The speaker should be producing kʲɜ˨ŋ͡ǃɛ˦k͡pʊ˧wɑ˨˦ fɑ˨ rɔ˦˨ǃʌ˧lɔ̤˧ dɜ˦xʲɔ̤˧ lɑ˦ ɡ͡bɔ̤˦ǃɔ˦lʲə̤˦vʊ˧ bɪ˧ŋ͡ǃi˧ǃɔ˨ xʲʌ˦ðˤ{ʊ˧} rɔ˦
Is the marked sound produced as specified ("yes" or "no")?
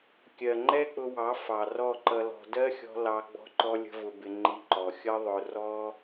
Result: yes